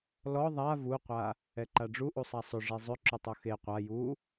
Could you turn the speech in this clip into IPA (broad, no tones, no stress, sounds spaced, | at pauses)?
l ɔ ðˤ a v u qʷ a | ɛ ǃ a ɖ͡ʐ u ʔ u sˤ a sˤ ʏ ʐ e zˤ ʏ ǁ ʏ tˤ u x e qʷ a j u